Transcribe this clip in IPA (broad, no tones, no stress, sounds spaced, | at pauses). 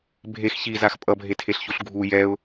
bʱ e x ç i z a x pʼ ʌ bʱ e tʰ e ɬ ç u ɬ ɡʱ u j ɛ ʊ̯